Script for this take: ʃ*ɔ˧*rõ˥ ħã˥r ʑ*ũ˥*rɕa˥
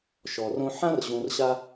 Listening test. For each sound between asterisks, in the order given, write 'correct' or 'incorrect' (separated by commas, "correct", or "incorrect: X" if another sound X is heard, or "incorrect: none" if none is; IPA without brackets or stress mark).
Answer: correct, incorrect: ũ˧